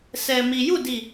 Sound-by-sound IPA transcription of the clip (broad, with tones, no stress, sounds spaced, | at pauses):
s ɛ˨ m i˨ j u˦˨ d i˦˨